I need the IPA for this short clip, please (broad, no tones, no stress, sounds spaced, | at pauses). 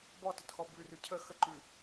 b ɔ t ə t x ɔ b ʉ r ʉ cʰ ə x ə ǃ ʉ